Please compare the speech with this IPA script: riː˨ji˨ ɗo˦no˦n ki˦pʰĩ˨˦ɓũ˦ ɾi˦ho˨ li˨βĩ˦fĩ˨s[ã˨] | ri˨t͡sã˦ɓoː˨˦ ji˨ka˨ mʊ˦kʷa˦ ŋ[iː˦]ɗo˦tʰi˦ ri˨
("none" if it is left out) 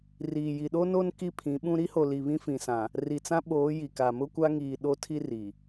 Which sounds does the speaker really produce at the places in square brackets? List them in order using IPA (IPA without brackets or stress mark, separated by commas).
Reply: ã˨, iː˨